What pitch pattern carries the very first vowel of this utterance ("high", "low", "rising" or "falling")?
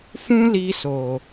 high